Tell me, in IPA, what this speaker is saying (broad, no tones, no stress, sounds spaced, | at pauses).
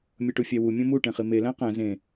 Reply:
mʲ o ʈ u fʲ æ w u mʲ õ m u ʈ ẽ χ i m e l æ̃ q æ̃ z ẽ